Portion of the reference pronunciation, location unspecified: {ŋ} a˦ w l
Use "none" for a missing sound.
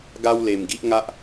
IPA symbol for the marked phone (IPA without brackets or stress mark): ɡ